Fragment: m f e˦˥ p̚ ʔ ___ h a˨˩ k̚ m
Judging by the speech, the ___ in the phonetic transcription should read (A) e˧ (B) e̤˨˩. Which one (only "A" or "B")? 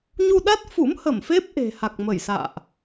B